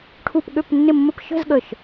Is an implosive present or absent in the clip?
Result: present